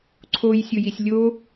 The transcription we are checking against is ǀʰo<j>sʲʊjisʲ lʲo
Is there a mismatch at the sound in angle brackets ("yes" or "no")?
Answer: no